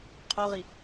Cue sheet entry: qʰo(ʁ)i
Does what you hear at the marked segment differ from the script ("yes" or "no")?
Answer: no